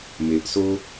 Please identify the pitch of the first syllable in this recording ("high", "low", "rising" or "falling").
low